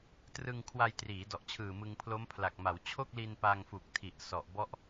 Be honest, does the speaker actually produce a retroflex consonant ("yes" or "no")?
no